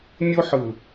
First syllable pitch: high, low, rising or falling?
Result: high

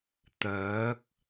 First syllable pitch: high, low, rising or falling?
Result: rising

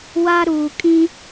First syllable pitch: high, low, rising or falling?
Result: high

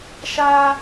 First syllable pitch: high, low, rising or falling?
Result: high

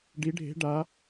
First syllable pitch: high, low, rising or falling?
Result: rising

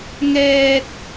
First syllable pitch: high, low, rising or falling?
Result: high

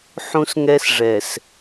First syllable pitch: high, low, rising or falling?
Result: high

